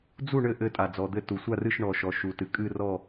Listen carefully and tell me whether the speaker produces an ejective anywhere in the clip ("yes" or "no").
yes